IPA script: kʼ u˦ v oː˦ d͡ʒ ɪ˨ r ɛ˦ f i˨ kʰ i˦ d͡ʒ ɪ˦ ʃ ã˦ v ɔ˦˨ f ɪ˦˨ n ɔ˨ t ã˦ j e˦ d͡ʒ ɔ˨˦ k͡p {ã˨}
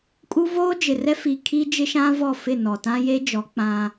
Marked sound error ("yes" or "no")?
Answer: yes